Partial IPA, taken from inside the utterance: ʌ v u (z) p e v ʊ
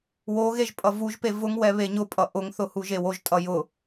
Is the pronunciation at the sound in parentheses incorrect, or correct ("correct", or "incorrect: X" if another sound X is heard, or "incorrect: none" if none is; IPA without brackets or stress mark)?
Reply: incorrect: ʒ